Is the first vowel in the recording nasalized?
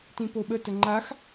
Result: yes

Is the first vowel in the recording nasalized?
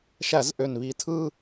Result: no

